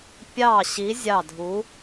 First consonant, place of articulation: labial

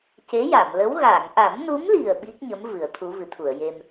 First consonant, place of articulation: palatal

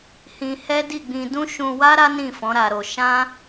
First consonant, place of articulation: glottal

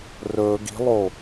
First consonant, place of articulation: alveolar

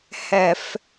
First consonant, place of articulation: glottal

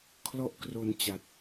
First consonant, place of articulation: velar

